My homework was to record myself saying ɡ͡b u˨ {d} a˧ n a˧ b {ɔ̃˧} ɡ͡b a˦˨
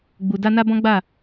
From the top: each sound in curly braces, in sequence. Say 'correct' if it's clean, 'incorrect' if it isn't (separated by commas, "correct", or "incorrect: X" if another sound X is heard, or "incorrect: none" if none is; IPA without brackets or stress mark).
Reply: correct, incorrect: ɔ̃˦